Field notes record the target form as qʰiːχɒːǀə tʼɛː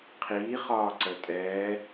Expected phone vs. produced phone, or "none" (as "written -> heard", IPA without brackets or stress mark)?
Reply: none